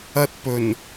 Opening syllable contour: high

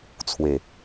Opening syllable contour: low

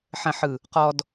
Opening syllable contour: low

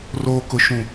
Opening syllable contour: low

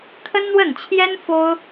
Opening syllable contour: high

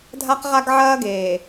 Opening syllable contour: high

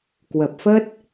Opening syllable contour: low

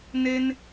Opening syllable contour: high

